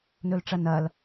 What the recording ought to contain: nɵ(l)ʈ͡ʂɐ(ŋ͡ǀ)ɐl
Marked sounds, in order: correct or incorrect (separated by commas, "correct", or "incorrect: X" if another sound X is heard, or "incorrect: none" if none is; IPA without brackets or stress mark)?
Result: correct, incorrect: n